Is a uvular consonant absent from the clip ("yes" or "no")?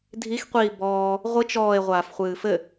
no